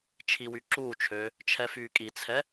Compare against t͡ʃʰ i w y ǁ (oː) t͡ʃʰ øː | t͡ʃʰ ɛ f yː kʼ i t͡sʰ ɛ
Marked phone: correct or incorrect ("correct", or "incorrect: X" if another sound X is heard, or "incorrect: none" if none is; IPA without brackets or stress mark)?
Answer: incorrect: uː